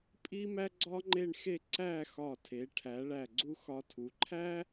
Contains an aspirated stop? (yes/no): yes